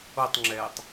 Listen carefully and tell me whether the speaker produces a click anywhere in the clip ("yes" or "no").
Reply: yes